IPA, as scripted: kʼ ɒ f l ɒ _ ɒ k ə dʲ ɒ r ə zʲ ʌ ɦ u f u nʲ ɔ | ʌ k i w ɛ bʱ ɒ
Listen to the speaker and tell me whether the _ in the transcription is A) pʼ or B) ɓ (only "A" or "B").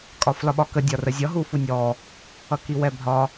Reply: B